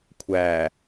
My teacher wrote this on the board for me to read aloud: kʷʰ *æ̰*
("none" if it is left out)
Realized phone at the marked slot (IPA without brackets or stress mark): æ